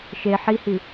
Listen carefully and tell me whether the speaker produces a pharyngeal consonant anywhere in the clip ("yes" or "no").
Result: yes